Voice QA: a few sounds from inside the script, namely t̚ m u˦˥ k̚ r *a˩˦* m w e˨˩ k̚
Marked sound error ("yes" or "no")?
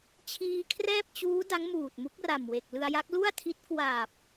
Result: yes